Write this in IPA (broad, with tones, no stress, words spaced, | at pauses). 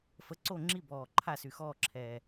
fə˨˥ǀo˥˨ ŋ͡ǁi˥˨bɔː˨˩ ǃʰa˥˨sy˨˩xɔː˥˨ǁʰɛː˨˩